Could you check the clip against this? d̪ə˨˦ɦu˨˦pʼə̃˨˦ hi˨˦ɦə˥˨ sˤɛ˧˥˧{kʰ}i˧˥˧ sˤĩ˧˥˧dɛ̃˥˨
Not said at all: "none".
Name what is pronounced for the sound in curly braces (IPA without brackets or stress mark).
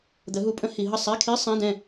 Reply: kʰ